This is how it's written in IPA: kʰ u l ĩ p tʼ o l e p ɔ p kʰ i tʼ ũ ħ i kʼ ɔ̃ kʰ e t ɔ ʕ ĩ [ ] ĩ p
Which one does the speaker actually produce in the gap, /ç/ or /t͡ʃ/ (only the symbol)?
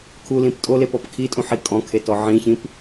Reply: ç